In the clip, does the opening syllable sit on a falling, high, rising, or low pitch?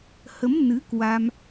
rising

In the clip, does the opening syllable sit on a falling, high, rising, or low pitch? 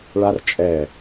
high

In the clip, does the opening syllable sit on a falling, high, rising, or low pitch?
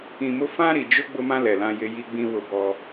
low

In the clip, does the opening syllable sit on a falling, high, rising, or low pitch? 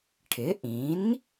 rising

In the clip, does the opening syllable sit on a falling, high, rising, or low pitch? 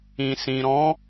low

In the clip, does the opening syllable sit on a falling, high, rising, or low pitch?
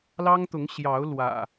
high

